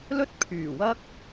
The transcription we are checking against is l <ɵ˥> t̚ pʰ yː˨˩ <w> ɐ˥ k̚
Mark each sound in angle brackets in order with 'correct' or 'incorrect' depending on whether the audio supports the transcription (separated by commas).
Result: correct, correct